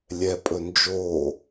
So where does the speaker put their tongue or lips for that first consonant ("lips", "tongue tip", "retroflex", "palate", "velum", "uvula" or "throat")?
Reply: tongue tip